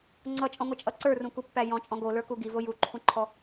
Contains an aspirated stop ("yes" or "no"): yes